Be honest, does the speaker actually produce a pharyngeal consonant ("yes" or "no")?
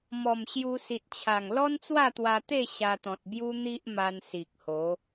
no